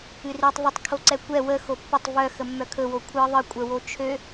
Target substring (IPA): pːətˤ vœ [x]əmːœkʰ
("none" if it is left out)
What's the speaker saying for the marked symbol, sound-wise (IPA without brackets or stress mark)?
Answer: x